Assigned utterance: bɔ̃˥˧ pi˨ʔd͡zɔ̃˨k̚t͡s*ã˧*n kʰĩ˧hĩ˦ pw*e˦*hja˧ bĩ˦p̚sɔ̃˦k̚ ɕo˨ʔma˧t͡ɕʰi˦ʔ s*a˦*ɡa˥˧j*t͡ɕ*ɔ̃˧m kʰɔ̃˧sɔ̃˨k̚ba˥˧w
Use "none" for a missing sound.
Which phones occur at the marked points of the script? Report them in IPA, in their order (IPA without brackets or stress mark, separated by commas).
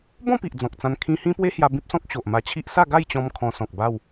ã˧, e˦, a˥˧, t͡ɕ